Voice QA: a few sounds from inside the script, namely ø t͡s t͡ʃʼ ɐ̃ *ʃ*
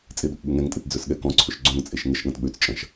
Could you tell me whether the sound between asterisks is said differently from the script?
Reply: no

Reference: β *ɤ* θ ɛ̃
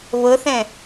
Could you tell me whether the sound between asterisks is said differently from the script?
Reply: no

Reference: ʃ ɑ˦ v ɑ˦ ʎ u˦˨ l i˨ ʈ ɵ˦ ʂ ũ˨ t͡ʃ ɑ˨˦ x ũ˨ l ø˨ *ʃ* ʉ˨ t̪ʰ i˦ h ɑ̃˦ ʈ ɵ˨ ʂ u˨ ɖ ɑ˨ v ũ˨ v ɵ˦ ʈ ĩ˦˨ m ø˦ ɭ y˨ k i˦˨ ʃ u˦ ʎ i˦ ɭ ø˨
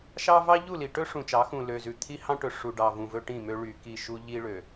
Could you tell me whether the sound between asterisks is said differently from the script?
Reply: yes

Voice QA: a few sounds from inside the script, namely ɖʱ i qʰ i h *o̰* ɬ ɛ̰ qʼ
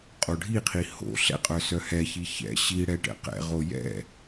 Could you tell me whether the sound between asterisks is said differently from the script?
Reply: no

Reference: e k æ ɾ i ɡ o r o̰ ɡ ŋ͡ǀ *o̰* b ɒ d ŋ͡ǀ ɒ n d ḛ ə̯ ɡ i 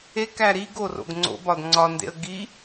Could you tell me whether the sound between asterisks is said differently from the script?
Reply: no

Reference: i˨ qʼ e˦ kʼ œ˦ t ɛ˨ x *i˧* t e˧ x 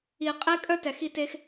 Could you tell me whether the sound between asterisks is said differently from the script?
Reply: no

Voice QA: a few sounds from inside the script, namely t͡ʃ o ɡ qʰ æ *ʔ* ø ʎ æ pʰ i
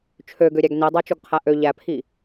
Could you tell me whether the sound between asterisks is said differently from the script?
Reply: no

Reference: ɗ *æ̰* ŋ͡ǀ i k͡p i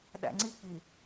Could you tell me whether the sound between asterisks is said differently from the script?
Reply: no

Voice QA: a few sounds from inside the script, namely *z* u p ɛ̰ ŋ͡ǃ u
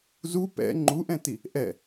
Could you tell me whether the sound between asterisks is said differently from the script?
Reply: no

